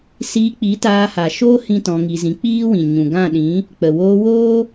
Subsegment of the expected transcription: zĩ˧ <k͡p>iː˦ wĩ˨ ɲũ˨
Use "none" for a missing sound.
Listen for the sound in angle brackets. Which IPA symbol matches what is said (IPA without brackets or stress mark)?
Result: k͡p